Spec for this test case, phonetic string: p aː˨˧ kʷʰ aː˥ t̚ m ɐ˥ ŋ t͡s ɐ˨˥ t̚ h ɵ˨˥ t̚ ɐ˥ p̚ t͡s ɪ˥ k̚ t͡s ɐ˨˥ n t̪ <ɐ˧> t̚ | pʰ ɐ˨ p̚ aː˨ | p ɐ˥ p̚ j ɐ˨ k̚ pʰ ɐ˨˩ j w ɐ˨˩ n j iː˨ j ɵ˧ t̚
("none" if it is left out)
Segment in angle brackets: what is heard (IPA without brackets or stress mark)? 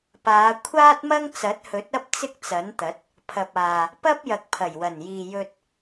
ɐ˨˥